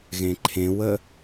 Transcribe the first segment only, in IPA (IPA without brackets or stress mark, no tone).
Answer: ɣ